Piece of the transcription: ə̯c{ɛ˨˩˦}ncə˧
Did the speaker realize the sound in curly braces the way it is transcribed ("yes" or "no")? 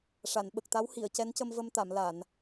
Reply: no